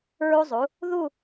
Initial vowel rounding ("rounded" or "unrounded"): rounded